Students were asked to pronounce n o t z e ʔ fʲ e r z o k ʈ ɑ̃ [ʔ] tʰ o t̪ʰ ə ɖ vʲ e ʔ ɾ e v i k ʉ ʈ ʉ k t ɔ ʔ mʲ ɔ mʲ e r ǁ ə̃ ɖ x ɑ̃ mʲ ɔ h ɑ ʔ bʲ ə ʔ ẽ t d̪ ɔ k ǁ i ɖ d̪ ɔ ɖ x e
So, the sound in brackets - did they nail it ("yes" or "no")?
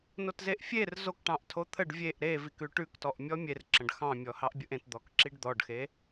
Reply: yes